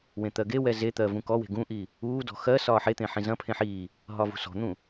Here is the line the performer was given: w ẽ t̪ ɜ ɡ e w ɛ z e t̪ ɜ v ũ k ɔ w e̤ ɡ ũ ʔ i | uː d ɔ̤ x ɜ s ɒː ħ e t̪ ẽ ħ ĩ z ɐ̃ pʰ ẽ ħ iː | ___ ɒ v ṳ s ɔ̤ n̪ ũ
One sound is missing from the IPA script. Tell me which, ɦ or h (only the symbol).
ɦ